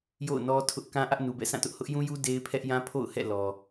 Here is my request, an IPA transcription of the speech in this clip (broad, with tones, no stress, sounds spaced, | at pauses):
j o̰˦˨ ʊ̯ n ɔ˦ tʰ ʊ˦ ʔ k ã˦ ʔ ä˦ ʔ n u˨ b ɛ̰˦˨ s ã˦˨ t ʊ˦ ʔ h ʊ˦ ʔ j ũ˦ j u˦ d e˦ ɪ̯ pʰ ɛ˦ ʔ j ã˦ pʰ o̰˦˨ ʊ̯ h ɛ̰˦˨ l ɔ˨